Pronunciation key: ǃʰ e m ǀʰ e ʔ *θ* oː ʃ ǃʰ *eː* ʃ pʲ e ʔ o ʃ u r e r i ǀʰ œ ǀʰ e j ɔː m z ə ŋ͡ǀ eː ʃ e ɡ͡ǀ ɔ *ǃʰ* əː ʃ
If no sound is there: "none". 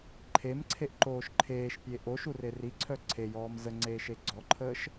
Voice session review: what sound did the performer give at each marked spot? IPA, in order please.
ǃ, eː, ǃʰ

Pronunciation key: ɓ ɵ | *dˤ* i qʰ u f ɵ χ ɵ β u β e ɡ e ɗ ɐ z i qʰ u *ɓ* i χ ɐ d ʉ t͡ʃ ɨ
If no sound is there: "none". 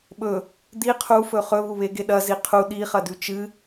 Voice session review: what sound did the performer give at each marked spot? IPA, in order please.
d̪, ɗ

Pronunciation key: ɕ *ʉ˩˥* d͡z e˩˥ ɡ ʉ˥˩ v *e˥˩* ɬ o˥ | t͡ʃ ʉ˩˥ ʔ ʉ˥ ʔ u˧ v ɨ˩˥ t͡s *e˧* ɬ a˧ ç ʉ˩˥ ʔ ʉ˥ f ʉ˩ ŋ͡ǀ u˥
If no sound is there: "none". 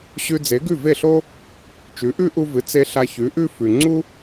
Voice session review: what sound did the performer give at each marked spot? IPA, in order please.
ʉ˧, e˥˩, e˧

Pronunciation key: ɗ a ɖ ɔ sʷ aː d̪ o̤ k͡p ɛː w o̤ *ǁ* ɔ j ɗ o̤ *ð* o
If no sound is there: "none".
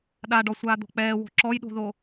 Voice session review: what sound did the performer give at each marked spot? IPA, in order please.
ǁ, ð

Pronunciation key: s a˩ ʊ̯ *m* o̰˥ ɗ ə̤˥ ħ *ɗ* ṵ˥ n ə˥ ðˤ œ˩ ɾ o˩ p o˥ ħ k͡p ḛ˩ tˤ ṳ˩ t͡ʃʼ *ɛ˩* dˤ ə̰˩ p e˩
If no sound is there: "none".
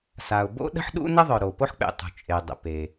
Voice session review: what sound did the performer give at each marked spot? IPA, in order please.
b, ɗ, e˩

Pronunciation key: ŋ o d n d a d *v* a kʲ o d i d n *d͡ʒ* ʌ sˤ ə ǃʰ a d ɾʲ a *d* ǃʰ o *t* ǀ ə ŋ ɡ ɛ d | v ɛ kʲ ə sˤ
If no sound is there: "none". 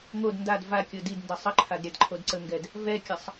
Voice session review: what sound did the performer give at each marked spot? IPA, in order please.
v, d, d, d

